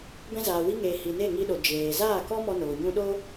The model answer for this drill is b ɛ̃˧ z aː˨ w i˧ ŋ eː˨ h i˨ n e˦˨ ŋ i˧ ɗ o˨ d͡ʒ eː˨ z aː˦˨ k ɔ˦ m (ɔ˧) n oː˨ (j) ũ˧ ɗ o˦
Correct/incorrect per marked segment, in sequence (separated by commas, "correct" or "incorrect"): correct, incorrect